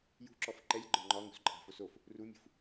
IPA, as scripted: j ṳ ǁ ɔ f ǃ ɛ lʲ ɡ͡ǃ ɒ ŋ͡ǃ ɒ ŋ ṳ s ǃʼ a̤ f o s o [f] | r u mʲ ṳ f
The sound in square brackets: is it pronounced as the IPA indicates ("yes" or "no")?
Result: yes